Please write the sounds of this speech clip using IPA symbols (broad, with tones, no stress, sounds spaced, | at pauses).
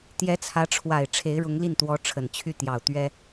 t̪ j ɛ˧˥ t͡sʰ ä˧˥ ʈ͡ʂʰ w a˨˩ ɪ̯ ʈ͡ʂʰ e˧˥ ɪ̯ ɻ ʊ˧˥ ŋ l i˥˩ n t̪ w ɔ˧˥ ʈ͡ʂʰ ə˨˩ n t͡ɕʰ y˥˩ t̪ j ɑ˨˩ ʊ̯ t̪ ɥ ɛ˥